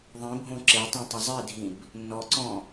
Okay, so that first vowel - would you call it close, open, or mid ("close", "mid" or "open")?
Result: close